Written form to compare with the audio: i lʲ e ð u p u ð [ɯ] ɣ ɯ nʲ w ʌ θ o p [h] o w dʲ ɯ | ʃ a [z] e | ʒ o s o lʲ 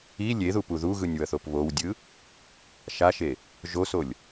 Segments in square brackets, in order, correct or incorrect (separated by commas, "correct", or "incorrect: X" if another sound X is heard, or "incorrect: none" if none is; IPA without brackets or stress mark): incorrect: u, incorrect: β, incorrect: ʃ